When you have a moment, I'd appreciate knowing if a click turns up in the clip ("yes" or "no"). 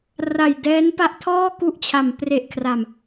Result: no